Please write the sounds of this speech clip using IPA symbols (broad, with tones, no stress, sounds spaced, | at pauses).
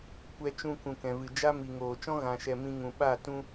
kʷ ɛ˧ t͡ʃ ũ˧ k ũ˨ k ɛ̃˨ v ɨ˨ d͡ʒ a˦ m i˨ ŋ oː˨ t͡ʃ ɔ̃˦ ɣ ã˧ ʃ ɛ˧ m ĩ˧ ŋ ũ˨ ɓ a˦˨ t ũ˦